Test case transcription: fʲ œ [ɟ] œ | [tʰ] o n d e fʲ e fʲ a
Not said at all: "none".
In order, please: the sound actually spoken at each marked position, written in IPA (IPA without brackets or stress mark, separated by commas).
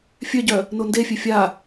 ɟ, n